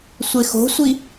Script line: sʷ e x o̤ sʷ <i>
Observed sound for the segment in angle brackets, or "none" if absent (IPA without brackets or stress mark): i